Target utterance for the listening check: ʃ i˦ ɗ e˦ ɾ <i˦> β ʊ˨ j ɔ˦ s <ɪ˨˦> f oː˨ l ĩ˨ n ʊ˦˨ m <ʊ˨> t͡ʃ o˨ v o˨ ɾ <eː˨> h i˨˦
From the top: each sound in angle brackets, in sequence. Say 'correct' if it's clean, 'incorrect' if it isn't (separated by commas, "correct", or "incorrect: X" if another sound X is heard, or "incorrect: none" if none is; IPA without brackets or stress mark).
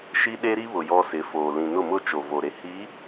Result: correct, correct, incorrect: ʊ˦˨, incorrect: e˨